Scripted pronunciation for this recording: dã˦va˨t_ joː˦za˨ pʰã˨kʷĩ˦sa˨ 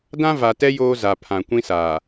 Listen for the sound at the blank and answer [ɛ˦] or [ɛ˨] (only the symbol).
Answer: ɛ˦